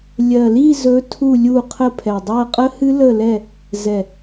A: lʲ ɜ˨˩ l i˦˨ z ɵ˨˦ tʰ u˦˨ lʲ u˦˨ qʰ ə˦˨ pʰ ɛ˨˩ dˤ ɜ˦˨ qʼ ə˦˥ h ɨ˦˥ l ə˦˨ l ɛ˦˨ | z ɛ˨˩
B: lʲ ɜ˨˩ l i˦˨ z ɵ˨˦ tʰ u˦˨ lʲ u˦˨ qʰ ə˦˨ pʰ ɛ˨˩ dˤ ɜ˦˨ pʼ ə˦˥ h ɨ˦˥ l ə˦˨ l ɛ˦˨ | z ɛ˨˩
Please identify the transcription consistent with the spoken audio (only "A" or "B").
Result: A